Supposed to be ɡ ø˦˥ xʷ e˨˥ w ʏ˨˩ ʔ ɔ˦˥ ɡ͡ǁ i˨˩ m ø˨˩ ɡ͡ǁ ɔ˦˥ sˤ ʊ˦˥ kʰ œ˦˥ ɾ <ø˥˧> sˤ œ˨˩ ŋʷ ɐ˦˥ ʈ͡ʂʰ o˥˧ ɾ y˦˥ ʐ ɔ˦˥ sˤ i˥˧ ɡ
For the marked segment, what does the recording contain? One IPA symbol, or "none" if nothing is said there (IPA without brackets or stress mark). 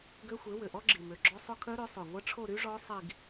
ø˨˥